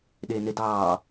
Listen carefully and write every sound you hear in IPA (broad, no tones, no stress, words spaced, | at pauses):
ɗeːnedɑː